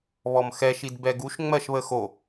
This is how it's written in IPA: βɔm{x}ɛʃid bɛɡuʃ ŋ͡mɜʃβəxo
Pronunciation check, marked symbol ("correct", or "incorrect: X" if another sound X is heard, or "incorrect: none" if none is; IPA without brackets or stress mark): correct